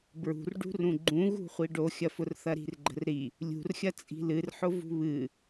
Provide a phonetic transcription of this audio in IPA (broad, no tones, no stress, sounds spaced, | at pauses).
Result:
b ɹ ṳ r ɖ ṳ r ũ ɡ͡ǃ ũ ɣ ṳ χʷ i ɖ o xʲ ɐ f ʊ r θ ɐ ɾ i̤ r ɡ͡ǃ ə̤ r ɾ i | lʲ ṳ r xʲ ɐ t͡sʼ i̤ l ɨ r ħ ʊ v ṳ β ɨ